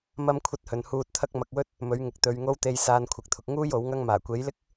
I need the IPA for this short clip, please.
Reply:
m ɐ˥ m kʷʰ ɐ˥ t̚ h ɵ˨ n h uː˧ t̚ t̪ʰ ɐ˥ k̚ m ɐ˨ k̚ w ɵ˥ t̚ | m ɵ˨˥ ɥ ŋ ɪ˨ k̚ t̪ ɵ˨˧ ɥ ŋ o˧ w t̪ e˨ j s aː˧ n kʷʰ ɪ˨ k̚ t̪ʰ ʊ˨ k̚ ŋ uː˥ j o˨˥ w ŋ ɐ˥ ŋ m aː˨˩ kʷ e˨˥ j l ɪ˥ k̚

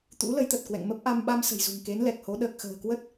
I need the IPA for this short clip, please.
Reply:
t̪ ṵ˧˥ l ə˨˦ j t̪ ə˨˩ t̚ k w ɛ̰˧˨ ŋ m ə˦˥ p̚ ʔ a˧ m ɓ a˧ m s ə̤˨˩ j z ṳ˨˩ ŋ k e˨˦ n l ɛ˨˩ k̚ h o˨˦ ɗ əː˨˩ k̚ x ə̤ː˨˩ k w ə˦˥ t̚

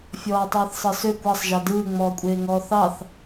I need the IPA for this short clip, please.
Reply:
fʲ ɔː tˤ ɯː θ sˤ ɯ s ø kʷ ɑ sˤ ʒ ɑ d ɯː ŋ͡m ɔː kʷʼ eː ŋ ɔː θ ɑ θ

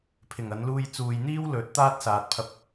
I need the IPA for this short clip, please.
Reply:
pʰ ɪ˨˩ ŋ ɐ˨˧ n l uː˧ j t͡s uː˨ j n̪ iː˥ w l ɵ˨˥ t̚ t̪ aː˥ t̚ s aː˨ t̚ pʰ ɐ˧ p̚

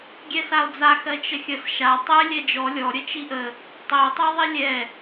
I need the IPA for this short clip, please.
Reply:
ɡʲ ɛ s a o̯ d͡z a x ɜ t͡ʃ ə xʲ ə s ʃ a tˤ ɛ lʲ ɛ d͡ʒ ɔ lʲ ɔ ɾʲ ə t͡ʃ i ʔ ə | tˤ i o̯ tˤ ɜ ðˤ i lʲ ɛ

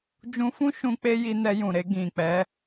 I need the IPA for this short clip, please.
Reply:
d͡ʒ ũ˧ f ũ˦ ʃ ũ˦ k͡p e˦ j i˧ n ɛ˧ j ũ˨ ɾ e˧ ɡ ĩ˨ k͡p ɛ˨˦

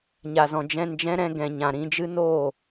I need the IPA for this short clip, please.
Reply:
ɲ a˨ z ɔ̃˨ d͡ʒ ɛ̃˧ n d͡ʒ ɛ̃˦ ɾ ɛ̃˧ ɡ ɛ̃˨ ɲ ã˨ ɾ ĩ˧ d͡ʒ ɨ˦ n oː˦˨

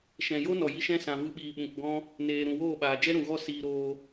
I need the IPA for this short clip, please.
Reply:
ʃ ɛ̃˨ j o˦ n ɔ˨ j i˧ ʃ ɛ̃˦˨ s ã˨ v ɨ˧ ɓ iː˨ ɓ ũ˨ k ɡ ɔ̃˦ | n eː˨ ɾ ũ˨ w oː˦˨ ɓ aː˨ d͡ʒ ɛ˦ ɾ ũ˨ ɣ ɔ˦˨ s iː˧ ɾ oː˧

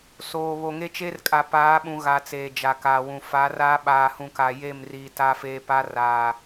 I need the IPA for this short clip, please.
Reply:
s oː˨ β o˨ ŋ e˦ t͡ʃ e˦ r kʼ a˨ p aː˨˦ ɓ ũ˨ ɣ a˨ t͡s eː˨ d͡ʒ a˨ k aː˨ w ũ˨ f a˨˦ r aː˦ ɓ aː˨ h ũ˨ k a˨ j e˦˨ m r iː˨ t a˦ f eː˦ p a˦ r aː˨

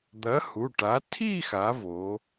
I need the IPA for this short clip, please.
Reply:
d̪ ɐ˨˥ h u˩˧˩ ʈ a˨˥ tʰ i˥˧ x a˩˧ v o˩˧

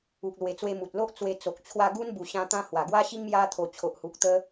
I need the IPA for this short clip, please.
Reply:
u˨ k̚ l w e˨˩ t͡s w e˧ m u˨ t̚ l o˦ ʔ t͡s w e˧ t͡s o˨ k̚ t͡ɕʰ w a˧ ɡ u˦ n b u˨˩ ɕ ã˧ t̪ ã˦ h w a˨˩ ɡ w a˦ ɕ i˦ ŋ m j a˧ t̪ʰ o˨˩ t͡ɕʰ o˨ ʔ h u˨ k̚ t̪ ə˧

